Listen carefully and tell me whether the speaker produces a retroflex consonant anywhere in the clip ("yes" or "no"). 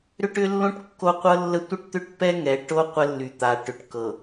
yes